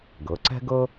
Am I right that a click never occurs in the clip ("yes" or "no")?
no